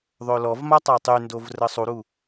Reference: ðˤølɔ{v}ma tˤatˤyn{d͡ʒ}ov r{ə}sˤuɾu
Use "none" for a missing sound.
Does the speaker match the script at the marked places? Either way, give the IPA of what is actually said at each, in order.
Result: v, d, ə

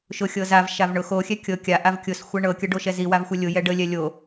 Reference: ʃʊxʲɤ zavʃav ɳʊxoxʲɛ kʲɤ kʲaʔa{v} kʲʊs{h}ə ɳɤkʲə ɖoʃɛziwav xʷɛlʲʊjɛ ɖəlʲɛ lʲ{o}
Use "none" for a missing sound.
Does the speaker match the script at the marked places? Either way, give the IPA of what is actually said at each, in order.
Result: v, xʷ, o

